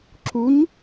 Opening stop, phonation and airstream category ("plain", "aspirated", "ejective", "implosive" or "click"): click